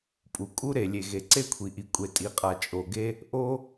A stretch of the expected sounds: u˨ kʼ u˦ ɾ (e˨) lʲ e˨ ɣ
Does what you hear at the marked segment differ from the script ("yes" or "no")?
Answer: no